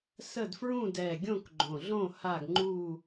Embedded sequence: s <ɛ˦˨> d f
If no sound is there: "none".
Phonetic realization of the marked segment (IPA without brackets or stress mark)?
ə˦˨